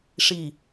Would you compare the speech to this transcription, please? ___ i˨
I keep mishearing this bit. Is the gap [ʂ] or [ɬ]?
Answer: ʂ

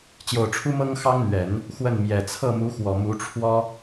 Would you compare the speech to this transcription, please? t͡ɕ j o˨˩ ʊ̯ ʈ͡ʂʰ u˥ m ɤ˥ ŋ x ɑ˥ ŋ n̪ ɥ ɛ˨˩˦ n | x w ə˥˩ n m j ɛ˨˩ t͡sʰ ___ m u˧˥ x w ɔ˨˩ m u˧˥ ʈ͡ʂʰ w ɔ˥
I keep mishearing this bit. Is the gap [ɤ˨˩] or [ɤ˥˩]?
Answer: ɤ˥˩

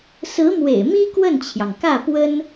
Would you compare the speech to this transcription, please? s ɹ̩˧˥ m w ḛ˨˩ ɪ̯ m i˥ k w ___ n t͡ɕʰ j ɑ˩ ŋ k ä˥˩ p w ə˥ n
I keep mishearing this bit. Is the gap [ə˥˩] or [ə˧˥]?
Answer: ə˥˩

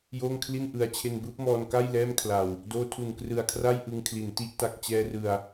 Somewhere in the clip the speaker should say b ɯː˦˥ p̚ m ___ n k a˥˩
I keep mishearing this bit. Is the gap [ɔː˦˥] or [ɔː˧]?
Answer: ɔː˧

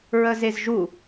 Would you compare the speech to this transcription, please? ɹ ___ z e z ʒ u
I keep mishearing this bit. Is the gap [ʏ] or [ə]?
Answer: ə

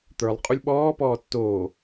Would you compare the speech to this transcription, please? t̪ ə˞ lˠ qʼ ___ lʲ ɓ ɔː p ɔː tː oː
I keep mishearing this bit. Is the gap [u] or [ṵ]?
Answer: u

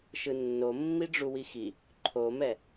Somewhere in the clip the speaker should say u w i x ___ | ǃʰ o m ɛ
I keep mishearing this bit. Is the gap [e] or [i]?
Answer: i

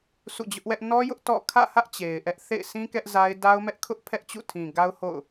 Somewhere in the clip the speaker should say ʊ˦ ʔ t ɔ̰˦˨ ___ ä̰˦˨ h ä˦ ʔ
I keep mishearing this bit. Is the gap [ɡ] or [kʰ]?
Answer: kʰ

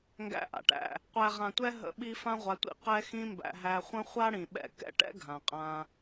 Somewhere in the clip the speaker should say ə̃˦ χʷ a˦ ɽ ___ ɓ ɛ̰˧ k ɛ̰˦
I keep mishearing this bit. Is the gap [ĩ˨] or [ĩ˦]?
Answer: ĩ˨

